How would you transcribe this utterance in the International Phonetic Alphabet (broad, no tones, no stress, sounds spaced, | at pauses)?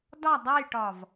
d ɒ dˤ ɐ j ʈ ɒ v